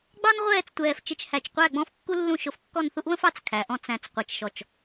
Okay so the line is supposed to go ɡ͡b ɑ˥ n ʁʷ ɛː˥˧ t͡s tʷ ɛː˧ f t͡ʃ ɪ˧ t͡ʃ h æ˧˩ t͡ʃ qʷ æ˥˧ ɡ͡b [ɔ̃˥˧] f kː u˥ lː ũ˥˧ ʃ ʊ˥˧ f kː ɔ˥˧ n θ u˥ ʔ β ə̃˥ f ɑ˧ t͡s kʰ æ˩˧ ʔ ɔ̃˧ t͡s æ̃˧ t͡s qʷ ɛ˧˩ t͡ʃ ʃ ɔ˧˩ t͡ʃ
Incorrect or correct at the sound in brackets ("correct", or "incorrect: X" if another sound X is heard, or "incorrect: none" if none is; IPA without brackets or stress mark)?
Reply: correct